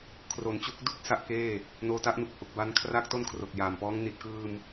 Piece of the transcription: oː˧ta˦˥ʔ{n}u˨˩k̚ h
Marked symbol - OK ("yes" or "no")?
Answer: yes